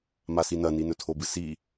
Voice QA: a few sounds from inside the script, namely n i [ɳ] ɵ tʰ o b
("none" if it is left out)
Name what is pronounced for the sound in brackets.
n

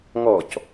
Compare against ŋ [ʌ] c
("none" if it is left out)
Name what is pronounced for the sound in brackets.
ɔ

